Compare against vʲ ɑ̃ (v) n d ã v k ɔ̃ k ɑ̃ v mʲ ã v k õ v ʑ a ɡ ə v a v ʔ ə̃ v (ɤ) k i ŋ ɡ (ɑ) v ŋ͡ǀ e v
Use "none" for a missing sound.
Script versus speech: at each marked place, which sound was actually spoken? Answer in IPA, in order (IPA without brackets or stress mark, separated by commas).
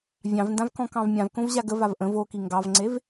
v, o, ɑ